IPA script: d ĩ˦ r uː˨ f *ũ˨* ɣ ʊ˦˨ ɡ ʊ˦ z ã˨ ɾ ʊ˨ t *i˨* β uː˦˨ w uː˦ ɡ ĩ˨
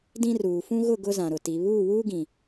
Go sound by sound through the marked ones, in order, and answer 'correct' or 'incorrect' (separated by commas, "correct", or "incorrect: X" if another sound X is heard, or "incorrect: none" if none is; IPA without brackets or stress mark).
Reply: incorrect: ũ˦, correct